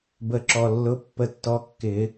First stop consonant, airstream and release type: plain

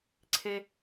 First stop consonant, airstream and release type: click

